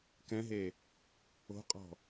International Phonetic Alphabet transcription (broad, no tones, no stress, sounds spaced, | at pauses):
k ɛ̃ ɦ e | o̤ qʼ ɔ̤